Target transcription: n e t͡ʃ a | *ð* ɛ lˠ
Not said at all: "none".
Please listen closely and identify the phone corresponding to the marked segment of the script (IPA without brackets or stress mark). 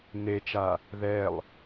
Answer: ð